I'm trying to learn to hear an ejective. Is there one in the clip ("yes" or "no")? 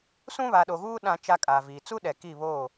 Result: yes